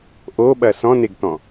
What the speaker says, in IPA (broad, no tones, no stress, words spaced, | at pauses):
ʔoɓɐ sɔ̃neɡt̪ɔ̃